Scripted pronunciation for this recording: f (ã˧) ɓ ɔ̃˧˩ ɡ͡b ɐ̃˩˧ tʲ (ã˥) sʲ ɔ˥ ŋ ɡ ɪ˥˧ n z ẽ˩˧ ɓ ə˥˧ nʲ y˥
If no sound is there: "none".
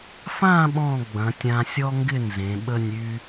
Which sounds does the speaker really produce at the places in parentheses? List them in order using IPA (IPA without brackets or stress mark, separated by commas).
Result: ã˥˧, ã˧